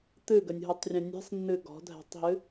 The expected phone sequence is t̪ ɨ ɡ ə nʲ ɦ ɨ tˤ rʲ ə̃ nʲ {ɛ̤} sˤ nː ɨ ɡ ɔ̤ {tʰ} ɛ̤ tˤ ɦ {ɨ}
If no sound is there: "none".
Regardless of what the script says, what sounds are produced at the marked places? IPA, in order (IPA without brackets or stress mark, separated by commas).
ɛ̤, dʱ, ɨ